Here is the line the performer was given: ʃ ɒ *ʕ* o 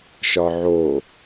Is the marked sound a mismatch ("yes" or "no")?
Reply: no